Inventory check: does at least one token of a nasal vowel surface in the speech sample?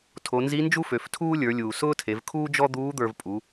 no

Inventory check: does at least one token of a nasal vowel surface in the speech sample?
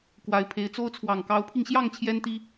no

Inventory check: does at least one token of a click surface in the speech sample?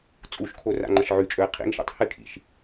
yes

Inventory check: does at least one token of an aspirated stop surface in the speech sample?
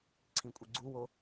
yes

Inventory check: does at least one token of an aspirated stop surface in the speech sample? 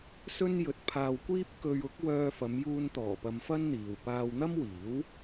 yes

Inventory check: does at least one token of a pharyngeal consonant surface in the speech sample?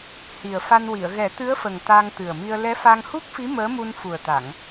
no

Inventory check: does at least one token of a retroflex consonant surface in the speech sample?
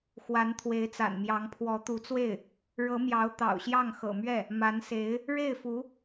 yes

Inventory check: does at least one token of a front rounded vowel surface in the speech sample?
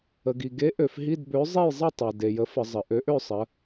yes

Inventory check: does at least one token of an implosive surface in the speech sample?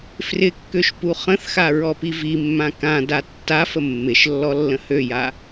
no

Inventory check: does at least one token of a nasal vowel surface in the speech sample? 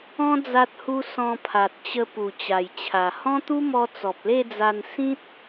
yes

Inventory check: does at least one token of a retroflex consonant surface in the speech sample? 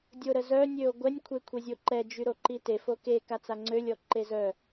no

